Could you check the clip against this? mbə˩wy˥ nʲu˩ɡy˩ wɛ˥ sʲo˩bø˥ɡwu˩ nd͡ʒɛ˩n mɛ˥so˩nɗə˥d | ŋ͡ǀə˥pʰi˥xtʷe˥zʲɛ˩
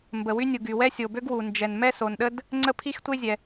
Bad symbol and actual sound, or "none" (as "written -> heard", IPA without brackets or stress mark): none